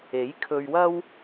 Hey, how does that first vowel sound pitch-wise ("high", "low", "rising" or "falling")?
rising